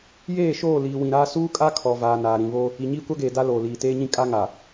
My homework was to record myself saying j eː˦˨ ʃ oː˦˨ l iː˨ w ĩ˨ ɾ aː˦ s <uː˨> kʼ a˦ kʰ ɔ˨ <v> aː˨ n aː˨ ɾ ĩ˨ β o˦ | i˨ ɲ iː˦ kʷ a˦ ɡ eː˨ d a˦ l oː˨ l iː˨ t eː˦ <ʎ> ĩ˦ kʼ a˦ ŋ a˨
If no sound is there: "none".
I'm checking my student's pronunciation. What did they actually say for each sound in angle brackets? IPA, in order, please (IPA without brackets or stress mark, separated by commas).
uː˦, v, ɲ